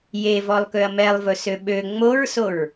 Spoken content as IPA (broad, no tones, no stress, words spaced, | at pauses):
jevɔlˠkøɐ̯ mɛlˠvɵsø ɓø ŋ͡moɹsoɹ